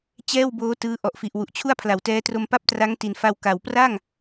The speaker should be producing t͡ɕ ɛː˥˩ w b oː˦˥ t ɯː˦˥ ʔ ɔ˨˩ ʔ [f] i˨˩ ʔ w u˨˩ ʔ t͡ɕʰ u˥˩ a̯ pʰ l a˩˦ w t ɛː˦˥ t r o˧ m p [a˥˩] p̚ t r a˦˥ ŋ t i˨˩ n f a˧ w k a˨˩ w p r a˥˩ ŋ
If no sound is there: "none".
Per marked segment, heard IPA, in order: f, a˥˩

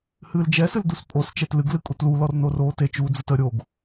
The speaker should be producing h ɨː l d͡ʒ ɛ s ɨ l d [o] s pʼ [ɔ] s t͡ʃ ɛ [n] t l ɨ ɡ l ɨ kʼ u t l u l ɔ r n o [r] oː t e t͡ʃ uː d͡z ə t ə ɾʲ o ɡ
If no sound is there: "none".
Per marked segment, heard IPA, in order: u, o, none, r

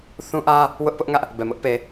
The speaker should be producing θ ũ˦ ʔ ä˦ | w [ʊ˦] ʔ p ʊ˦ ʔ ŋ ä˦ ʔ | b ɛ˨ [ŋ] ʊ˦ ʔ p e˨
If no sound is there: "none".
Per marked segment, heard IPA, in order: ʊ˦, m

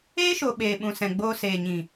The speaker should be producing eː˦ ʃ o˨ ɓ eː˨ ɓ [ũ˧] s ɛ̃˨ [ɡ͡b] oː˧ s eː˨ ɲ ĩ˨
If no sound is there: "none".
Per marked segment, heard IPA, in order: ũ˨, ɡ͡b

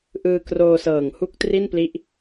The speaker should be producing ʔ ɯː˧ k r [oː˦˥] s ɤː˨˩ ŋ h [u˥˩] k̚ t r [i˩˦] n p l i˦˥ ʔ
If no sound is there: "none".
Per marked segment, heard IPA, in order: oː˧, u˥˩, i˥˩

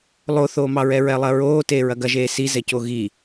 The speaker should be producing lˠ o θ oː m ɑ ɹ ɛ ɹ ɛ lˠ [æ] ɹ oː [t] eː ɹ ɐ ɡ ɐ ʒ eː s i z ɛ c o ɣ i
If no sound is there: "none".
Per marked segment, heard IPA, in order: ɐ, t

